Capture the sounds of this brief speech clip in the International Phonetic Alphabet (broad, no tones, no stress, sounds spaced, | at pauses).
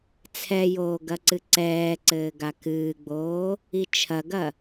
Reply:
t͡sʰ ɛ j oː ɡ ɐ ǀ ɨ ǀ ɛː ǀ ɘː ɡ a k ɨː ɡ͡b oː | i t͡ʃʰ ɐ ɡ ɐ